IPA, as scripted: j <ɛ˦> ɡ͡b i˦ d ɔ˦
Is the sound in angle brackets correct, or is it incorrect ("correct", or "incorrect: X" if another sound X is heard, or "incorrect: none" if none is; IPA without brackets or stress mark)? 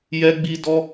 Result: correct